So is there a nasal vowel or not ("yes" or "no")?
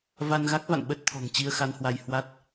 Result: no